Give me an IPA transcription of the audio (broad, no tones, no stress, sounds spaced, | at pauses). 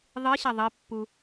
ðˤ ɨ ɕ ɐ ðˤ ɨ pː u